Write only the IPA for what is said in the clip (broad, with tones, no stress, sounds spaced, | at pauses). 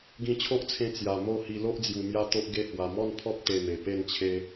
ɡ ĩ˧ t͡ɕʰ o˦ ʔ t͡sʰ ẽ˧ t͡s j a˨˩ m o˥˧ h i˧ l o˦ ʔ d͡z j u˨˩ m j a˦ t̪ o˦ ʔ ɡ e˥˧ h w a˨˩ m ɔ˥˧ n pʰ ɔ˦ p̚ t̪ e˧ m e˨˩ p e˥˧ n t͡ɕʰ e˦